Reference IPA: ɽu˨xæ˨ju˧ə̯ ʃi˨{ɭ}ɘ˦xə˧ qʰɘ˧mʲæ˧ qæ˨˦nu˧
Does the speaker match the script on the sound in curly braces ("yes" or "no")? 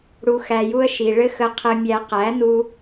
yes